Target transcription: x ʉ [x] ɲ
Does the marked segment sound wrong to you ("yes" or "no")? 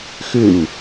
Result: yes